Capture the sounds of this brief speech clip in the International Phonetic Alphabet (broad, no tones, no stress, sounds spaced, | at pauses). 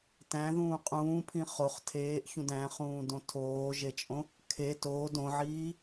t æ̃ ð ũː qʼ ũː pʰ ĩ χ o χ tʰ eː ʔ ç ũ d æ̃ χ ũː d õ tʰ oː ʒ e t͡ʃʼ õ | kʰ e t oː d õ ʕ iː